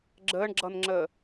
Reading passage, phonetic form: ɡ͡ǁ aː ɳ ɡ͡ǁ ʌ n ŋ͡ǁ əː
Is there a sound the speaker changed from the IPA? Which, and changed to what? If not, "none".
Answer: aː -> əː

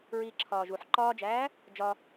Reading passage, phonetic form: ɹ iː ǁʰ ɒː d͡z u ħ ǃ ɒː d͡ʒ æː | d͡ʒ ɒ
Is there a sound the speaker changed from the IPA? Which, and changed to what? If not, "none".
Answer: d͡z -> ʒ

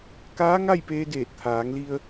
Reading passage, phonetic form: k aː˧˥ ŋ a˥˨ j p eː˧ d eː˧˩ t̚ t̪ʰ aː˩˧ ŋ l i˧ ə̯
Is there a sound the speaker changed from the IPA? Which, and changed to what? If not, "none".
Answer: none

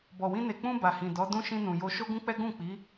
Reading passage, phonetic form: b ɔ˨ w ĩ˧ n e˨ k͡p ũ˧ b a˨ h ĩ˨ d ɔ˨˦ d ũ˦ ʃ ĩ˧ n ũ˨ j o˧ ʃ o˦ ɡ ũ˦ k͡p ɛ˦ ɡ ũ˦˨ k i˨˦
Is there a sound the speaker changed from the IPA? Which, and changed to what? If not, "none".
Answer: k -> k͡p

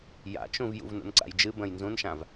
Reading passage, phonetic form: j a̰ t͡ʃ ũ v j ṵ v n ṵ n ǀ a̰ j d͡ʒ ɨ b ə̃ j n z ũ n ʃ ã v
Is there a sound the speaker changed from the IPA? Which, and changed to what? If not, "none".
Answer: none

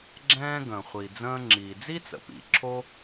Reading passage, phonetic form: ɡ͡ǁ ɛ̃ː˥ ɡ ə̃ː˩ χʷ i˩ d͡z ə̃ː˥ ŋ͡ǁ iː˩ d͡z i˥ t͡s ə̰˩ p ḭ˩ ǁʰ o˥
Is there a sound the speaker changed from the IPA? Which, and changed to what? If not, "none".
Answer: none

